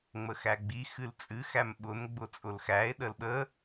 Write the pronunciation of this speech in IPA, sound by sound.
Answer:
ŋ͡m ə x æ ɡ͡b i x ɨ l t͡sʼ ɨ x æ m ɓ ʊ n ɡ͡b ʊ t͡sʼ ʊ l x æ e̯ ɗ ə l ɓ ə

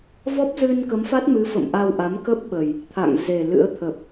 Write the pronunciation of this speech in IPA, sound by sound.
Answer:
v ɔ˦˥ p̚ z ɨ˧ n k ə˨˦ m f a˦˥ t̚ m ɨ˨˦ f ə̰˧˨ m ʔ a˧ w ʔ a˨˦ m k ə˦˥ p̚ ɓ ə˨˩ j | t̪ʰ a̰˧˨ ŋ z e˨˩ l ɨ̰˧˥ ə̯ t̪ʰ ə˨˩ p̚

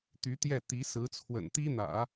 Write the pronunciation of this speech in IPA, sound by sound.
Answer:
t̪ y˧˥ t̪ j ɛ˥˩ t̪ i˧˥ s ɹ̩˧˥ t͡sʰ w ə̰˨˩ n t̪ i˥ n̪ ä̰˨˩˦

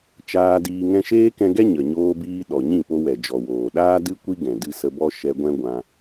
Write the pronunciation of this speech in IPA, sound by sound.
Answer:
t͡ʃ aː˧ d iː˧ ŋ ɛ̃˧ ʃ eː˦ k ɛ̃˧ ɡ ɛ˦ ɲ ə˨ ɲ oː˧ b iː˧ ɗ ɔ˨ ɲ ĩ˦˨ p o˧ w ɛ˨ d͡ʒ ɔ˨ w oː˨ ɗ aː˦ d ɨ˦ kʷ i˦ ɡ ɛ̃˨ d ɨ˧ s ə˧ b ɔ˦ ʃ ɛ˧ ɡʷ ɛ̃˦ ɡʷ ã˧

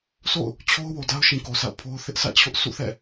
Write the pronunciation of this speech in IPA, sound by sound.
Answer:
s o̰˦˨ ʊ̯ | t͡ɕʰ o˦ ʊ̯ w o˨ d a˦ ʊ̯ ʃ ĩ˨ k o˨ s a̰˦˨ ʊ̯ pʰ o˦ ʊ̯ θ ɪ˦ ʔ sʰ ä̰˦˨ t͡ɕʰ ʊ˦ ʔ sʰ ṵ˦˨ θ ɛ̰˦˨

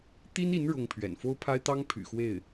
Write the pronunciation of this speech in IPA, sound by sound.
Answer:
t̪ i˥ n i˧˥ n ɻ ʊ˥ ŋ pʰ ɥ ɛ̰˨˩ n f o˥ ʊ̯ pʰ a˥ ɪ̯ t̪ ɑ˥ ŋ pʰ y̰˨˩ x w e˥˩ ɪ̯

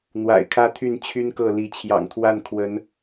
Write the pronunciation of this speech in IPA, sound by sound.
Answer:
n̪ w a̰˨˩ ɪ̯ kʰ ä˦ t̪ʰ y˥˨ n t͡ɕʰ y˦ n k ɤ˥˨ l i˨˦ t͡ɕʰ j ɑ̰˨˩ ŋ t̪ʰ w a˥˨ n kʰ w ə˨˦ n

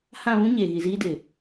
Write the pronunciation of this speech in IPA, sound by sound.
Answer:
h ã˦˨ β ũ˦ ɲ eː˨ ɣ i˨ z iː˦ d ɪ˨

